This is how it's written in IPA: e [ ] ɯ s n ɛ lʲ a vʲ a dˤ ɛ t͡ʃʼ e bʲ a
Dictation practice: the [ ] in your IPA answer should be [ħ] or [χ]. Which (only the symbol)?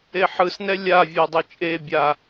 ħ